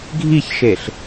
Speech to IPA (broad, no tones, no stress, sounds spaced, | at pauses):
ɡʱ i ç ʃ e ɬ